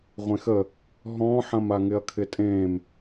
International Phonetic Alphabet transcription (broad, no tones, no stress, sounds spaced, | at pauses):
ʁʷ ẽ x ə | ɦ ɔ̃ː ħ ɐ̃ m a ŋ ɪ ɐ̯ kʰ ɪ tʼ ẽː m